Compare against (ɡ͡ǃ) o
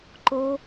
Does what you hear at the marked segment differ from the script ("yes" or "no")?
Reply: yes